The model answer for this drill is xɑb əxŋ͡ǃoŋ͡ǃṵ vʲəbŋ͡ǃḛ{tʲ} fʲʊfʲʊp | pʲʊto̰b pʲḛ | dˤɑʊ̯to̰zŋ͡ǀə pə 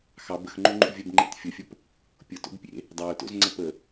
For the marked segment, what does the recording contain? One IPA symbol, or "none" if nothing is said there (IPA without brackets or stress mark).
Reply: t